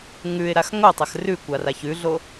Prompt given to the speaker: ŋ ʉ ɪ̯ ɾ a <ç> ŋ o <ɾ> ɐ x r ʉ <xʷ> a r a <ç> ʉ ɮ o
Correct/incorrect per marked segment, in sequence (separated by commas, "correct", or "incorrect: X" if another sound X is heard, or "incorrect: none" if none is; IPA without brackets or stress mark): incorrect: x, incorrect: tˤ, incorrect: kʷ, correct